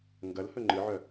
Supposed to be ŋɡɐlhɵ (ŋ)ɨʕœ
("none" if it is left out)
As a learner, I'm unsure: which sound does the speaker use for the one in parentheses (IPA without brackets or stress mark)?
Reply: ŋ͡ǃ